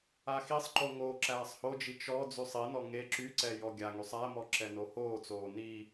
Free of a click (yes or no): no